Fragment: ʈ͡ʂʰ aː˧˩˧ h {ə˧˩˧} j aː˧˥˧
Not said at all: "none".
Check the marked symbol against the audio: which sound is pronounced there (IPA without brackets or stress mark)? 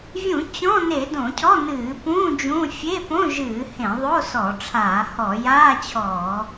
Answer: ɔ˧˩˧